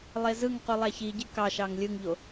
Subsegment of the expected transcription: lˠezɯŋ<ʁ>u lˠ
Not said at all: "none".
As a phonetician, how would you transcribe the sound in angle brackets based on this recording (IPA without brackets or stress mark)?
q